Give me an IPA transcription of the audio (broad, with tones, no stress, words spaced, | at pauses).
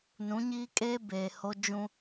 nũ˨˦ɲiː˦kʼeː˦ beː˨ho˦ d͡ʒũ˦